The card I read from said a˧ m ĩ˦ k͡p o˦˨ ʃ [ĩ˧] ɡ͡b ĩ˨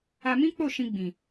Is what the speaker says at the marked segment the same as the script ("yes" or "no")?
yes